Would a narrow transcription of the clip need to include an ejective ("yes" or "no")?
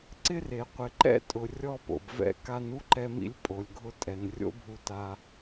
yes